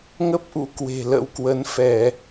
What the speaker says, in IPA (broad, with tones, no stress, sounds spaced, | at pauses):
ŋ ə˦˥ p̚ ʔ ṵ˧˥ k w e̤˨˩ l ə̰˧˥ w k w ə˨˦ n f ɛ˧˩˨